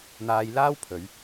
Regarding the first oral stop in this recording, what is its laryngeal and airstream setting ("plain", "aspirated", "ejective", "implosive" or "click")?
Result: aspirated